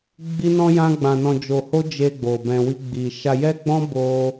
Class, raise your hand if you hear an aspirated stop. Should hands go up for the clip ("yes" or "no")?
no